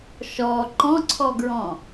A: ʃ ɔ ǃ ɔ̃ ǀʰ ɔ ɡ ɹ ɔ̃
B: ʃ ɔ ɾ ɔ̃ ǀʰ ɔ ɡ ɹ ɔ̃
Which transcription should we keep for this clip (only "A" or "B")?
A